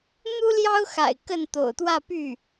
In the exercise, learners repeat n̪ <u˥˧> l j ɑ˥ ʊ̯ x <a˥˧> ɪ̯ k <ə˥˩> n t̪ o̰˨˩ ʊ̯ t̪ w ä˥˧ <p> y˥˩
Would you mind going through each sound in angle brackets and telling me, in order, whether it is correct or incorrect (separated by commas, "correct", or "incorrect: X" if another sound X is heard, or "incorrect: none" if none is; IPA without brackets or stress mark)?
incorrect: u˥, incorrect: a̰˨˩, correct, correct